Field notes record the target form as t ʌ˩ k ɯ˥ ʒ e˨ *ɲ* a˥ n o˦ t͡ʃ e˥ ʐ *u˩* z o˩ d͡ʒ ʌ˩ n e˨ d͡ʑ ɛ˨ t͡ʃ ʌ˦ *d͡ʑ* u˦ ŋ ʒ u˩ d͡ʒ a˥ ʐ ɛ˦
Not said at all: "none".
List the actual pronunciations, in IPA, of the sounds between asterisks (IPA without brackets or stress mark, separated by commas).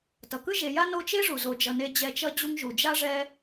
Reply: j, u˩, d͡ʑ